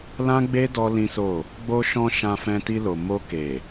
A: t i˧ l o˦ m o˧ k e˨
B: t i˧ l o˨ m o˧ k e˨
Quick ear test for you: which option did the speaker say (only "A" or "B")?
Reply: B